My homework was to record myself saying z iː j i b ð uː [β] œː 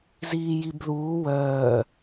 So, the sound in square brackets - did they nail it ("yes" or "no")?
no